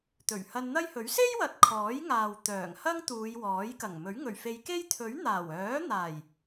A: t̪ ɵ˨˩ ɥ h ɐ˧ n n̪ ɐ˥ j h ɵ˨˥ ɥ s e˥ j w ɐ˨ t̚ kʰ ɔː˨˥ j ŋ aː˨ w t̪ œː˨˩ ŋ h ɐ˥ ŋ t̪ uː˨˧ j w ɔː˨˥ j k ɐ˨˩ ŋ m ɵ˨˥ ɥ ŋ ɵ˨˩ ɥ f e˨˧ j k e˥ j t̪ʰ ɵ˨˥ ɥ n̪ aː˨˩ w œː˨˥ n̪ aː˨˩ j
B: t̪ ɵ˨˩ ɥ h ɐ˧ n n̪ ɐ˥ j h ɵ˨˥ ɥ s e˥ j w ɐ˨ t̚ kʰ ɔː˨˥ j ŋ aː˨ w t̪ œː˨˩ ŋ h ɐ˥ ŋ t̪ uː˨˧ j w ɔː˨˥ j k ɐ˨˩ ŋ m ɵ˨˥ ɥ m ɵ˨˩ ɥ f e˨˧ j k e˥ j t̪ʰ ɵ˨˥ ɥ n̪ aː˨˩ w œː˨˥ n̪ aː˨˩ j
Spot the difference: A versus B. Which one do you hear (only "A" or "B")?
A